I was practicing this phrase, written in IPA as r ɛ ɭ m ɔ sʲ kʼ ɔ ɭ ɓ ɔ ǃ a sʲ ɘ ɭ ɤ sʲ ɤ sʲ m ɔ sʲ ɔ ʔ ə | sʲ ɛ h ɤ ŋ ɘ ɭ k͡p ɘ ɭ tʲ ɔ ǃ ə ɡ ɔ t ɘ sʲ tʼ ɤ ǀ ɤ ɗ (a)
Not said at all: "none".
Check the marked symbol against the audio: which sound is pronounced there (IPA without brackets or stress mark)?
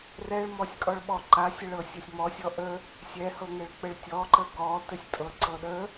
ə